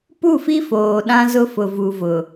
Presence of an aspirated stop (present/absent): absent